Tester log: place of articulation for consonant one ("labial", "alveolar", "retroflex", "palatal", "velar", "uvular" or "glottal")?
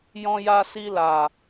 palatal